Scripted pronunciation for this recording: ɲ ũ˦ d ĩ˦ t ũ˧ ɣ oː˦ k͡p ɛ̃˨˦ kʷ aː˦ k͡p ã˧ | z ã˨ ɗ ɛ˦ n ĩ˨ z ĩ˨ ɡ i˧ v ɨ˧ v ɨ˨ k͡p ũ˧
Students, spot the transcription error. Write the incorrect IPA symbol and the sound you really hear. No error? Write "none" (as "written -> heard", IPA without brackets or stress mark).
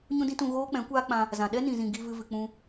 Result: none